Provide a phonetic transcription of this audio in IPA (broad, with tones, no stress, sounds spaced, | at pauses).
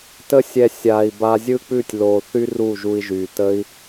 t ə˧ sʲ ɛ˨ sʲ aː˨ i̯ b a˧ zʲ ɯ˦ k͡p ʉ˦˨ tʲ l oː˨ θ y˦ r u˦˨ ʒ u˧ i̯ ʒ y˨ t ə˦ i̯